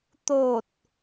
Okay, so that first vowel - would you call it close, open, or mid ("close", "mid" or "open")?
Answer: mid